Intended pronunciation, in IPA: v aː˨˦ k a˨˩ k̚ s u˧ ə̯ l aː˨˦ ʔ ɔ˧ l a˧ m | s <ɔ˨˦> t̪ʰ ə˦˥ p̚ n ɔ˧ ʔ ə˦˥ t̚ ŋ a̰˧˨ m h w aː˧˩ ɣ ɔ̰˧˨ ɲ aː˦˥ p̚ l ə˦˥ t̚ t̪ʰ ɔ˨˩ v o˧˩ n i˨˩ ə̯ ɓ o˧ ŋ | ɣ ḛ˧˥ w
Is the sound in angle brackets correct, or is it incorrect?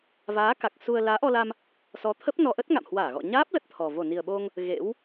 correct